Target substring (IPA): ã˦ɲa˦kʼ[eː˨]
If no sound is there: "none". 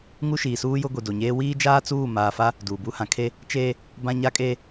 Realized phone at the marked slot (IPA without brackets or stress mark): eː˦